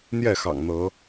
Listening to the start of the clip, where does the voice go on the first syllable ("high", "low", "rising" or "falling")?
falling